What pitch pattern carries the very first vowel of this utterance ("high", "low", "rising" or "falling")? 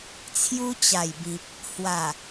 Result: high